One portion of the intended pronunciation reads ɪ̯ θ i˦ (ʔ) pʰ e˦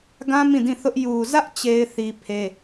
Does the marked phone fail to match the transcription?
yes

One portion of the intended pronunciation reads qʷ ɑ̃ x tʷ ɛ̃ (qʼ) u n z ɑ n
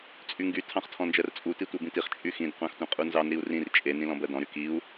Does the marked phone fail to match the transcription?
no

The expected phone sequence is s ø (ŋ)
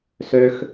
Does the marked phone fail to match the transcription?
yes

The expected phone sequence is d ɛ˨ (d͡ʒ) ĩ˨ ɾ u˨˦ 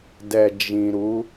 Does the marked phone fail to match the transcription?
no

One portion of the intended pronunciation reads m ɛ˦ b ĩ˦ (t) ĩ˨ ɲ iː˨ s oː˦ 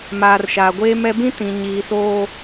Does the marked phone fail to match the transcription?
no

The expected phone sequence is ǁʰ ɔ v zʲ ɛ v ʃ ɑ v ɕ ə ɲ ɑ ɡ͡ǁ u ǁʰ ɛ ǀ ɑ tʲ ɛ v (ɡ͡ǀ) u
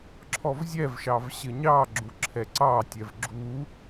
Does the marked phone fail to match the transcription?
yes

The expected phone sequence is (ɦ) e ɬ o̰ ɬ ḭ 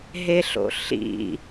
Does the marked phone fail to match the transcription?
no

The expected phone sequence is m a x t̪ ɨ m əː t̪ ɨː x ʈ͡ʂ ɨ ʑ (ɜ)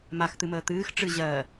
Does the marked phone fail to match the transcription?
no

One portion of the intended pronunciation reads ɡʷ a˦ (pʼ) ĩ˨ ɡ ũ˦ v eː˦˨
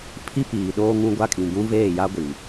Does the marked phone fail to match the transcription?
yes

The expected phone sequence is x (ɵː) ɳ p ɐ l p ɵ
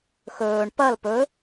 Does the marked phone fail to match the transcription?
no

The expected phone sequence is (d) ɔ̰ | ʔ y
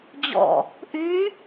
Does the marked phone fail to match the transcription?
yes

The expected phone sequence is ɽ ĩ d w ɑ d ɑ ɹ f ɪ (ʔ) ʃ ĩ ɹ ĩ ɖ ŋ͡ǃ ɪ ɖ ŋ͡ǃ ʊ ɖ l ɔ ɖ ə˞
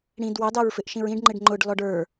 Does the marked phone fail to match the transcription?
no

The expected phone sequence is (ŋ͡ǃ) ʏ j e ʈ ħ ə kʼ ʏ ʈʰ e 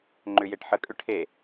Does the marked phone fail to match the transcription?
no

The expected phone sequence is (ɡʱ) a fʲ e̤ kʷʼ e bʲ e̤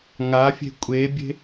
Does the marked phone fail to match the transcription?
yes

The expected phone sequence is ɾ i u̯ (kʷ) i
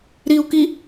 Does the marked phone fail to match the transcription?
yes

